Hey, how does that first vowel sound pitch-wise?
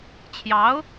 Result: rising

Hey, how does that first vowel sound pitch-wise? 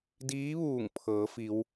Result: rising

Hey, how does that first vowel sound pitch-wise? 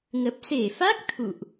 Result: low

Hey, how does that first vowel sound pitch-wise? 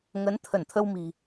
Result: rising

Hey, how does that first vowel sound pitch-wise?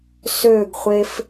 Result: falling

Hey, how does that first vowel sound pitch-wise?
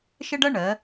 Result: high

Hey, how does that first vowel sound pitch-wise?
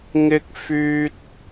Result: high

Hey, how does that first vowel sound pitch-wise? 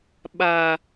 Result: high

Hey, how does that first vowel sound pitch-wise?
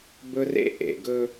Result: high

